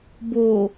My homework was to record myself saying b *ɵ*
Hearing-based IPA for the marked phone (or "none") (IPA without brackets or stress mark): o